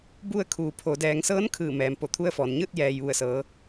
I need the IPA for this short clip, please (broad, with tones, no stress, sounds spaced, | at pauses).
b u˧ ə̯ kʰ uː˩˧ pʰ o˩˧ d ɛː˩˧ ŋ s ɤː˧˥ n kʰ ɯː˧˩ m ɛː˩ m p o˧˩ t̪ʰ u˧ ə̯ f ɔː˩ n ɲ ɯː˥˨ t̚ j ɛː˩ j ʋ u˧˩ ə̯ s ɤː˩˧